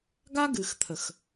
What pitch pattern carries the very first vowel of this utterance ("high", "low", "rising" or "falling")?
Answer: high